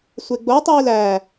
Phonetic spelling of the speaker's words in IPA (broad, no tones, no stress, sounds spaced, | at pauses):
sʷ e ɡ͡b o tˤ iː l æ